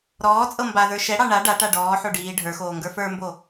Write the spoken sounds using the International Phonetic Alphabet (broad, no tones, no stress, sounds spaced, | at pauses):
ɾ ɔː t͡sʼ ɤ m b a ð ə˞ ʃ ɛ ɽ ɑ ɳ a ɖ a ʈ a ɖ ɔː ħ o ɖ iː ɖʱ ə˞ x oː ŋ ɡ ə˞ f ə˞ m b o